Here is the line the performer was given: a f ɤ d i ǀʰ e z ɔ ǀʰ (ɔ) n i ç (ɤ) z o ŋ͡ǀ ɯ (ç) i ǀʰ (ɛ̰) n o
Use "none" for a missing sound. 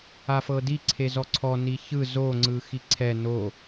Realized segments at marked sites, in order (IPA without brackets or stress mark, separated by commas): ɔ, ɯ, x, ɛ